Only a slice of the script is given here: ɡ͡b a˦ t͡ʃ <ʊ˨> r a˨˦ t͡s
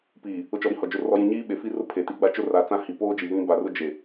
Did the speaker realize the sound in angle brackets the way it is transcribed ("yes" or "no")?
no